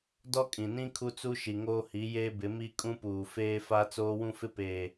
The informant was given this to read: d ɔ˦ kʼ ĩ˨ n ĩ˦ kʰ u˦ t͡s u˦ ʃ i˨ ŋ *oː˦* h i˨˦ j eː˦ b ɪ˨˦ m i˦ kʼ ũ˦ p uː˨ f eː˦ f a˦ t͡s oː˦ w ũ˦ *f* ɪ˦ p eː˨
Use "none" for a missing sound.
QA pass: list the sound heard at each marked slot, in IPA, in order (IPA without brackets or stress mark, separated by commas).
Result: oː˦, f